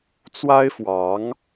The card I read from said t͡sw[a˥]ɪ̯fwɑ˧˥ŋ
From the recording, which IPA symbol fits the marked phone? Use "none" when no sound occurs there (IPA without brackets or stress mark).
a˥